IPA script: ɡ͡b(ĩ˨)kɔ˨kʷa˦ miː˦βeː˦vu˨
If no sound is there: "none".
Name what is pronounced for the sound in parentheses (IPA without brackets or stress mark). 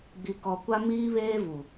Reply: i˨